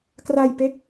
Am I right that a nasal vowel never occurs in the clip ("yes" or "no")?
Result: yes